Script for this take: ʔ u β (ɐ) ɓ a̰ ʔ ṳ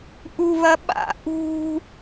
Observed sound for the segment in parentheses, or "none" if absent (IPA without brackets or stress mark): ɐ